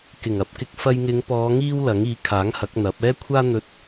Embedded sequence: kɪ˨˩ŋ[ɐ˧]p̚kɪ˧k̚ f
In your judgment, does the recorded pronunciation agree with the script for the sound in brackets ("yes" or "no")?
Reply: yes